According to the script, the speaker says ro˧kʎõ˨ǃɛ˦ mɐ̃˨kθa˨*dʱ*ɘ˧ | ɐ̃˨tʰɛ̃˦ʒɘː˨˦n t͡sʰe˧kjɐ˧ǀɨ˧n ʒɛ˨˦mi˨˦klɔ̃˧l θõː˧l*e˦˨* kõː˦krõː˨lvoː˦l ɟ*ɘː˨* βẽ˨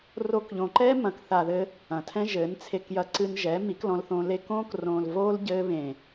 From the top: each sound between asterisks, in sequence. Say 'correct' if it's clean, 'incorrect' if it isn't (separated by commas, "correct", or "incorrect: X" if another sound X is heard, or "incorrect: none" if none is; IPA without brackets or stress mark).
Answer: incorrect: ð, incorrect: e˦, incorrect: ɘː˦